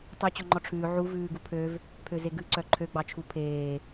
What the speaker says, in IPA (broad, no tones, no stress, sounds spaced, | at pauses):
tˤ ɵ t͡ɕ ɔ ŋ͡ǃ ɔ ʈ͡ʂʰ ʉː ʕ u v ʉː ɡ u pʰ ø v | pʰ ø z e ɡ ʉ ǀ œ ǃʰ ø ɡ͡b ɑ t͡ʃʰ u pʰ eː